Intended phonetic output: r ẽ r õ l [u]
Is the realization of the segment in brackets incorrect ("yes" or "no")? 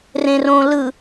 yes